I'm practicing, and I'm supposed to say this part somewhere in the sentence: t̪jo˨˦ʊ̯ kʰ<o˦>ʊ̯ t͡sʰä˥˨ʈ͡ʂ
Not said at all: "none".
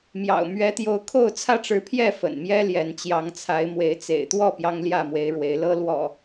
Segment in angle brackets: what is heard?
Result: o˥˨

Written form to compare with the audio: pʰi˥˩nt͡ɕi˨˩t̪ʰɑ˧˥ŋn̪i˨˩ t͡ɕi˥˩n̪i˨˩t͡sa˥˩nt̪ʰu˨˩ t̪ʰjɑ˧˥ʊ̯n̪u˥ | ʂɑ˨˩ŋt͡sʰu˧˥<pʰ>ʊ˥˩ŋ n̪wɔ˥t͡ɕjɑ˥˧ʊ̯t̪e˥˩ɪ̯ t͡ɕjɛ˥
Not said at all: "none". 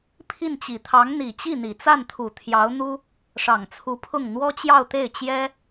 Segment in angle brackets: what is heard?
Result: pʰ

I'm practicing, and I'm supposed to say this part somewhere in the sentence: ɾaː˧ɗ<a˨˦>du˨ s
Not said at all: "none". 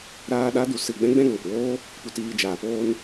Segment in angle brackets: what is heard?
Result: a˨˦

